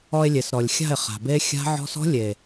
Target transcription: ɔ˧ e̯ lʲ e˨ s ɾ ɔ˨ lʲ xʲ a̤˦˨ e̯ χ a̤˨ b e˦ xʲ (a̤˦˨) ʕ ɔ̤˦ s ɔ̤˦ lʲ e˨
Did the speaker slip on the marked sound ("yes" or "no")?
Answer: yes